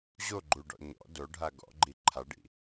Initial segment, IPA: ʑ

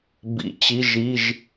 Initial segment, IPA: b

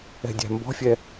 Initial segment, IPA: ɛ̤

